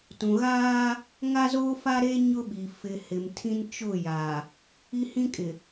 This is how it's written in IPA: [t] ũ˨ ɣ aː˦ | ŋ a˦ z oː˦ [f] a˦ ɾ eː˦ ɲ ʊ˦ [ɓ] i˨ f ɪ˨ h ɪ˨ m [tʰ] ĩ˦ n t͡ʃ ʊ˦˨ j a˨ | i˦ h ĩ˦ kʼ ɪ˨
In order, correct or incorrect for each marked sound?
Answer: correct, correct, correct, correct

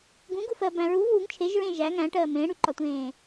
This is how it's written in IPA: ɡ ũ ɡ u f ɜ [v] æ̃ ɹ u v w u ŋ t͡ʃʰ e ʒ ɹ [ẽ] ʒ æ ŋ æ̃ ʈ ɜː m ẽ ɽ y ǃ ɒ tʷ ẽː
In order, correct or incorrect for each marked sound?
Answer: incorrect: b, correct

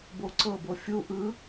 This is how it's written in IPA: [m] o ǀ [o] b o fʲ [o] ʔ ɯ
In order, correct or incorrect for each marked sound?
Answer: incorrect: b, incorrect: ɤ, incorrect: u

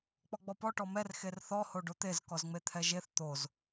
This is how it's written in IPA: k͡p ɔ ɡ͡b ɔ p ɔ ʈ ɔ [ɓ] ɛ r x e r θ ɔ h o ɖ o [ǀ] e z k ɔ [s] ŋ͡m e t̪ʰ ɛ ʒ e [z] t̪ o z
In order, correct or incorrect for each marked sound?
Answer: incorrect: m, incorrect: t̪, incorrect: z, incorrect: θ

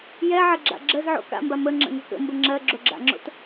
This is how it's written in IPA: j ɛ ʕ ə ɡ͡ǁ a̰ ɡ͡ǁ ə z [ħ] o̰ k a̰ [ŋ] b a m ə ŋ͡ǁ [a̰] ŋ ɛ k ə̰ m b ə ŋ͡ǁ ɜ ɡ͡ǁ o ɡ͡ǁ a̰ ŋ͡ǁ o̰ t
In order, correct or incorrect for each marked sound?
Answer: incorrect: ʕ, incorrect: m, incorrect: ə̰

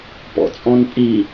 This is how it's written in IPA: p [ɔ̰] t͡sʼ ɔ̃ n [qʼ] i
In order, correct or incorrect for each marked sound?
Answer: correct, incorrect: pʼ

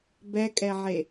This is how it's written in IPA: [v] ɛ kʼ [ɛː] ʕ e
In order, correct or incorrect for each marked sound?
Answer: incorrect: b, incorrect: ɛ

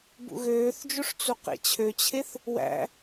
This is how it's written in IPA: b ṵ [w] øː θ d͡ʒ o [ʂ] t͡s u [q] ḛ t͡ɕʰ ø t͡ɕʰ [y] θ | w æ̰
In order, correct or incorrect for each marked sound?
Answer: incorrect: ɣ, correct, correct, incorrect: e

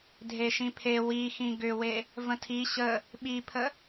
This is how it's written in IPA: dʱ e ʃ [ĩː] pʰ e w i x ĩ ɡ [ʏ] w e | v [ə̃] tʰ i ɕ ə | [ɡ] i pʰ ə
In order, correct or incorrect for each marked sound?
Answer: incorrect: ĩ, correct, correct, incorrect: ɓ

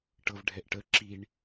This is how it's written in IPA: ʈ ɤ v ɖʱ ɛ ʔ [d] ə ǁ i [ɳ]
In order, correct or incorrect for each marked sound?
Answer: incorrect: ʈ, correct

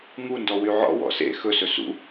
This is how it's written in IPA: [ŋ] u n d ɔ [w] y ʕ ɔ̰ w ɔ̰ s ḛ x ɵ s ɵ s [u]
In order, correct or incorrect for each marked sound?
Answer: correct, correct, incorrect: ṵ

